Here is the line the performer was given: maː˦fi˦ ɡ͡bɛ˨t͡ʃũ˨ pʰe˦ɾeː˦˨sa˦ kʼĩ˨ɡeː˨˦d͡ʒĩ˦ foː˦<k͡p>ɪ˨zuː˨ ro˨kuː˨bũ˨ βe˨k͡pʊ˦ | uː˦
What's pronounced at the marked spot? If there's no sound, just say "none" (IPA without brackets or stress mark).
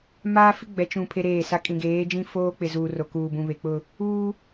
k͡p